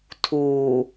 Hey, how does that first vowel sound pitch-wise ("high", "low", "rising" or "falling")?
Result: low